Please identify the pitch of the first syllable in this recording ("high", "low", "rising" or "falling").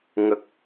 low